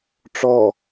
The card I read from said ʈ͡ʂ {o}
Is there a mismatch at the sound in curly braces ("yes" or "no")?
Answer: yes